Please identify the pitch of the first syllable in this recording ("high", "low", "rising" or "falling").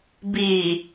low